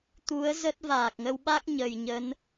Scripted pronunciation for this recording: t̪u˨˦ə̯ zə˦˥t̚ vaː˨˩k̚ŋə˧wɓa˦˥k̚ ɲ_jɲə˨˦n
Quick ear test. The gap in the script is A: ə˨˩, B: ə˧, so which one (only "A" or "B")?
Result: A